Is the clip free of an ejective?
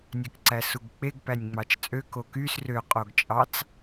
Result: no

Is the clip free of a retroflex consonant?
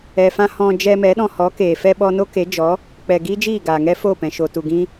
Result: yes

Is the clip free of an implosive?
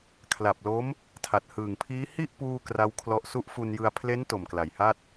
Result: yes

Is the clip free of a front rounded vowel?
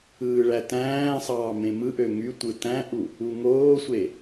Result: no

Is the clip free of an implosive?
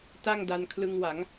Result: yes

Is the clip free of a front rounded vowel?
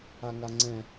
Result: yes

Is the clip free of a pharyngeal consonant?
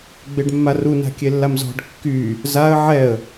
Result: no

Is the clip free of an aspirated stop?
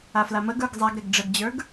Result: yes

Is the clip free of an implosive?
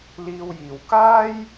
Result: yes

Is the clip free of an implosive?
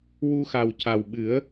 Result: no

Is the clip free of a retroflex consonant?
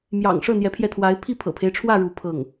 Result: no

